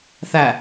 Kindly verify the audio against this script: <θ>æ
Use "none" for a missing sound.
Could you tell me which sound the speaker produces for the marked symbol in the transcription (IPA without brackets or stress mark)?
θ